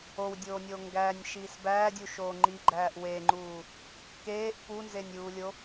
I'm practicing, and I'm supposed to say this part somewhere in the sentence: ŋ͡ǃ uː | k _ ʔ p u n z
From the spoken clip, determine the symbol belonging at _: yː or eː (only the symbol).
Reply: eː